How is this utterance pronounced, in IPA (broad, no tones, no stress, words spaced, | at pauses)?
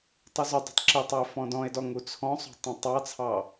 tˤuzʏdˤṳtˤ ǁɪtˤɐe̯ fɔ̃dɔ̃e̯dɔ ŋut͡sʰɔ̃sˤṳ tˤõtˤɑt͡sʰɑ